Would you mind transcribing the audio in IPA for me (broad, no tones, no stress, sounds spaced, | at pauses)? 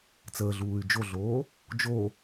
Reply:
t͡s əː ɮ uː y̯ d͡ʒ o ɮ oː | d͡ʒ o